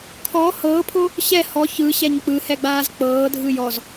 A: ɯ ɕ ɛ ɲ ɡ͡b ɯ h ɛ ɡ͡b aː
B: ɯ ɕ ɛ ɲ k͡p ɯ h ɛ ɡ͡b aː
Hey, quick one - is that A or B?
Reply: B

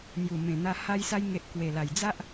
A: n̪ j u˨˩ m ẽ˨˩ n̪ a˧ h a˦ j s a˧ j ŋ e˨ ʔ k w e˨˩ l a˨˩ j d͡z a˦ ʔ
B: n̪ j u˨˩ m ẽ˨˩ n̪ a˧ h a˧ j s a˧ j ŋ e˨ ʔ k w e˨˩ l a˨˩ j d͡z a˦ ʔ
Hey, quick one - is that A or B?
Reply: B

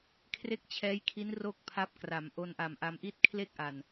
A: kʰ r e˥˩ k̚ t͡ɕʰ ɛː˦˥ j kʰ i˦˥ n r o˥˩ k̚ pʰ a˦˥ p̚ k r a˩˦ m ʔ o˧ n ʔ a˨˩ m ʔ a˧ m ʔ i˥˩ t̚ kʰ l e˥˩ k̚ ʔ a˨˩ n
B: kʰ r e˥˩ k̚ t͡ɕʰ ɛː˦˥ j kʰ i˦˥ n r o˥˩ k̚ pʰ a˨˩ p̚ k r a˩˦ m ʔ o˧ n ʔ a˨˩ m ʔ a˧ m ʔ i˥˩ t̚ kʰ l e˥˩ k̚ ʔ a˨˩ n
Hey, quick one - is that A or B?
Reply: A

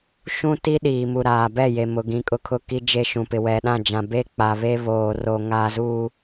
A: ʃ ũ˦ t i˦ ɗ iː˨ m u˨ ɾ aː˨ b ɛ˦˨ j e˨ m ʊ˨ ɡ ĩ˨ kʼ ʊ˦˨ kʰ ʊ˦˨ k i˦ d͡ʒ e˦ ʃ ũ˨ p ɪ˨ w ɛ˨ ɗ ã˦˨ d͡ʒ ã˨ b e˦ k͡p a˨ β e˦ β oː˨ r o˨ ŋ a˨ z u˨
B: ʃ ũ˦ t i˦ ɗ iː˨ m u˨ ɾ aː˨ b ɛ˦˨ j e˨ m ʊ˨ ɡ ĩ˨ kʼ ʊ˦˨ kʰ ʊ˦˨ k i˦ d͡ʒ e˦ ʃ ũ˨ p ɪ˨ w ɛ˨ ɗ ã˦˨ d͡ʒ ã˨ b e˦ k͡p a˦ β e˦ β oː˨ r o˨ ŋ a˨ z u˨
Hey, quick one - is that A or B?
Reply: A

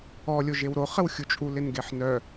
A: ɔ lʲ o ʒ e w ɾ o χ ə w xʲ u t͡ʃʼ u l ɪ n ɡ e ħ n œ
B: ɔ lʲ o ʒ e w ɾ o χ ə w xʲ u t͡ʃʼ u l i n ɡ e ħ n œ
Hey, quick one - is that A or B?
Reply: A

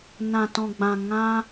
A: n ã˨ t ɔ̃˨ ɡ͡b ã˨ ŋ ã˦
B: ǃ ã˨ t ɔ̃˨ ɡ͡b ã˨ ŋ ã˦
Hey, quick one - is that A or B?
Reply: A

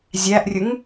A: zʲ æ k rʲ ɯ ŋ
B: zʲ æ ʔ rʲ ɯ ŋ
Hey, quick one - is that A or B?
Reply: B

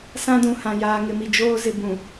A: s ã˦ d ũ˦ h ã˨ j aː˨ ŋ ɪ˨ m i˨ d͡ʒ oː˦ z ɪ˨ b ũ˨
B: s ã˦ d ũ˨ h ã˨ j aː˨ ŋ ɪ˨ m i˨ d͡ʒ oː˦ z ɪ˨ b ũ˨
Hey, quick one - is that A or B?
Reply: B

